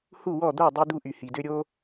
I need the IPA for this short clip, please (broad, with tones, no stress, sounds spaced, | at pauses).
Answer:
h u˥˨ w ɔ˥˨ d̪ o˥˨ dˤ y˦ d̪ u˦ ʔ y˨ h i˨ d ø˦ ɾʲ o˦